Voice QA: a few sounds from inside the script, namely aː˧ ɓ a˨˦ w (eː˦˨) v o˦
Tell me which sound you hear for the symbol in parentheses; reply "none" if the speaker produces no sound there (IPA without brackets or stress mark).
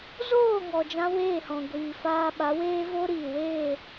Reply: eː˦